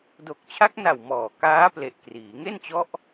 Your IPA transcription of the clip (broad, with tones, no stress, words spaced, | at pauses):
do˨˩k̚t͡ɕʰa˦˥k̚na˨˩w mɔː˨˩ kaː˦˥ple˨˩ʔ kriː˩˦ ŋe˥˩nt͡ɕɔ˦˥ʔ